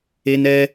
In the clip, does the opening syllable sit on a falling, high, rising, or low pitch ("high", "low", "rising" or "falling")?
high